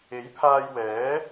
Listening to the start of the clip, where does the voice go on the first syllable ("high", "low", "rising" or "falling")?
rising